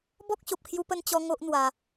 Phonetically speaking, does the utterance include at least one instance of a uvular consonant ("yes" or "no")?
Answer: no